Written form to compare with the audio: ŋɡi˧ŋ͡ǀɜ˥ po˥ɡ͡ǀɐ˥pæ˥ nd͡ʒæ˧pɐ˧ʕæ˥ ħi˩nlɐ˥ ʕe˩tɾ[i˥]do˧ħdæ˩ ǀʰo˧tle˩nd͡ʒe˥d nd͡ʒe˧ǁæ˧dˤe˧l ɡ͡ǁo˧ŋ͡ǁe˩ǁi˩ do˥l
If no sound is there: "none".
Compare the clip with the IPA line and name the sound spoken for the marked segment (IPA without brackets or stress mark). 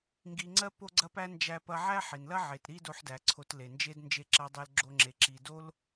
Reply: i˥